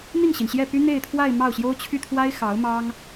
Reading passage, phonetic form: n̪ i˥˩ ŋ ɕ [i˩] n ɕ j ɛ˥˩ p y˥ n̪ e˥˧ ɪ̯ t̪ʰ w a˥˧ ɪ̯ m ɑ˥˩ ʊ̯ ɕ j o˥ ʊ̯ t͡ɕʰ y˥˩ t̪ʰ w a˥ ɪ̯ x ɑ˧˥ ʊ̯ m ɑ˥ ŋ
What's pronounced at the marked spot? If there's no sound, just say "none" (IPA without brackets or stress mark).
i˩